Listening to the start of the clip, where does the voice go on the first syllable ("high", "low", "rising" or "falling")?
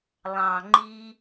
low